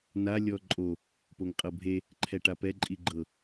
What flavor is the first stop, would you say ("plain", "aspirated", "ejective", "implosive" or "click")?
click